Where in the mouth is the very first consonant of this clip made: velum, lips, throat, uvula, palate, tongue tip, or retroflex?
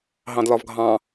throat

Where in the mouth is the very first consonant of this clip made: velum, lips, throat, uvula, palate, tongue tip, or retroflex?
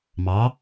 lips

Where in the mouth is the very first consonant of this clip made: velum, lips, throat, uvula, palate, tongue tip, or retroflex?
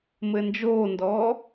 lips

